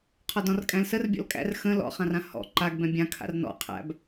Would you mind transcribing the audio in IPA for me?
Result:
qʰ ɔ d ɔ̃ r kʼ æ̃ l s ə r bʲ ɔ̰ l kʼ æ̰ r x ə̃ l ɔ̰ χ ã r ã h ɔ̰ ǃ a ɡ b ɛ̃ bʲ ã kʰ a̰ r n ɔ̰ qʰ æ̰ b

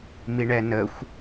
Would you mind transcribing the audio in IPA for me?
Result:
m i ɳ ɛ n ə xʷ

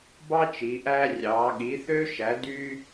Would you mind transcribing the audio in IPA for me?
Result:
b ɑ˥ t͡ʃ i˨˦ ʔ æː˥ rʲ ɑː˨˦ ɠ i˨˦ θ ø˥ ʃ æ˨˦ d y˥

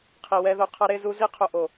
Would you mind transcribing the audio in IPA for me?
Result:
qʰ i˨ w ɛ˧ ð o˧ qʰ ʌ˧ ɾ e˧ z u˧ z i˦ qʰ o˧ ʔ o˨

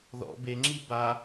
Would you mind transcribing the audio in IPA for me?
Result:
ð ɔ̰ b e ŋ͡ǁ i b a

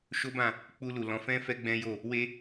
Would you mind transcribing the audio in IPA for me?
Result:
ʃ o˦ b ã˦˨ | k͡p u˧ l u˨ l ɔ̃˨˦ f ɛ̃˦ f ɛ˦ ɡ͡b ɛ̃˦ j o˦˨ | w e˦

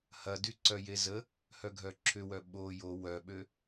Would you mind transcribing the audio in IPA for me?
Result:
h ɐ d y ǀ œ j e z ə | h œ ɡʱ œ ǁʰ ʏ w œ ɓ o j o w œ ɓ ø

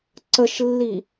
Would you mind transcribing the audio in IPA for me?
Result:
ǀ ə ʃ lː i

